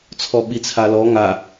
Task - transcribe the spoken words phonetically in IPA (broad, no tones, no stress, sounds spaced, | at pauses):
t͡sʰ ɔ ɓ i t͡sʰ a l ɔ ŋ a